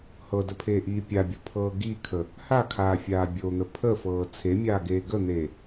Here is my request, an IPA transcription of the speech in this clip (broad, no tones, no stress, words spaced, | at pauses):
hɤdəpʰeːʔiː pʲabʲopʰɤː ɡikʰə | hakʰaːfʲaː bʲon̪ə pʰəfɤː t͡sʰemʲaːɡeː ɡən̪eː